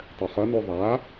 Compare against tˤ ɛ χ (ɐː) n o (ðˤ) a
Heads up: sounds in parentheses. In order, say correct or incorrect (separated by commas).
incorrect, correct